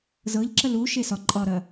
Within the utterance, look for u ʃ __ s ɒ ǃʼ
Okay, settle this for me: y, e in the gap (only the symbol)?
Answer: e